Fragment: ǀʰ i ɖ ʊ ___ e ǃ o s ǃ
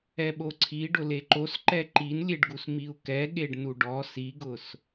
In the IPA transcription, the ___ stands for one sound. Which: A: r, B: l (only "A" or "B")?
B